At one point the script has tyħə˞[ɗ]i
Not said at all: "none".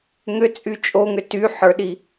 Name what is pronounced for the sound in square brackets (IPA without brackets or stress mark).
ɗ